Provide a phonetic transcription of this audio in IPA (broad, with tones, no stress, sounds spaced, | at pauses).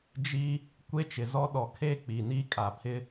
d͡ʒ i˦ | kʷ e˦ t͡ʃ ɪ˨ z ɔ˦ ɗ ɔ˨ kʰ e˦˨ k͡p i˨ n i˦ kʼ a˨ pʰ ɪ˦